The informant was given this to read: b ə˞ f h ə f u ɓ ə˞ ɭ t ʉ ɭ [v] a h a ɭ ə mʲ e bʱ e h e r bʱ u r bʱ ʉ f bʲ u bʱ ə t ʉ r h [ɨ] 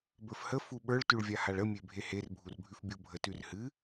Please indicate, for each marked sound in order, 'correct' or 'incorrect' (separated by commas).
incorrect, correct